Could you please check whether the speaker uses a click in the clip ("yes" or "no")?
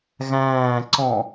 yes